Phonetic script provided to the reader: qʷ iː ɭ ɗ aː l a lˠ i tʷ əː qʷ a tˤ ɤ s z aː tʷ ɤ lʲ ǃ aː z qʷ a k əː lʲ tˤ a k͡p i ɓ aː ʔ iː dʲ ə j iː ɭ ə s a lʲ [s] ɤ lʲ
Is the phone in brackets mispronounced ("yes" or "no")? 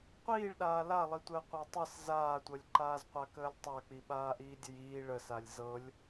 yes